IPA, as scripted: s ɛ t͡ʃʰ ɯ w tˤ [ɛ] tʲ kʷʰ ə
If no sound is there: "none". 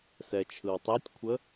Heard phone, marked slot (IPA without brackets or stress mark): ɛ